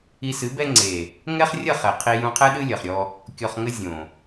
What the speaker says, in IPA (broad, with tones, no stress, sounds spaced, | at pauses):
i˧ s ɨ˨˦ b ɛ˦ ŋ͡ǀ e˨ | ŋ ɛ˦ χ rʲ ɐ˦˨ χ ɛ˨ qʰ i˧ j ũ˧ qʰ ɛ˦ ɗ ɨ˦ lʲ ɐ˨ χ ɾʲ ɔ˧ | kʲ ɔ˧ χ ŋ ɘ˦ zʲ õ˨